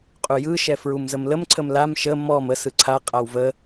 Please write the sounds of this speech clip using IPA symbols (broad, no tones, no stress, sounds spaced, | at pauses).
qʼ u j ɯ ʃ ɛ f ɹ u m z ə m l ə m ǀʰ ə m l a m ʃ ə m ɔ m ə s ɯ ǀʰ a qʼ a w v ə